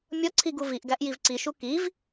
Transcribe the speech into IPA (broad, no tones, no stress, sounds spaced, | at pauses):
mʲ ɒ ǀʰ i ɡ u v i ʔ ɡ æ ʔ j i v ǀ i ʃ u k i v